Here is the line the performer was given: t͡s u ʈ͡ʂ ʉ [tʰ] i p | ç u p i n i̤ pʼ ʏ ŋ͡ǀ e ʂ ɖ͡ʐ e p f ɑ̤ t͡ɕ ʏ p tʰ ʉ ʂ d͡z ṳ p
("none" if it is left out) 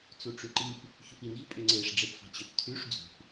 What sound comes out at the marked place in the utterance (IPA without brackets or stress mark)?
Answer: ǃ